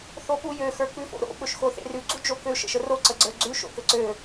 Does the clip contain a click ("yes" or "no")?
yes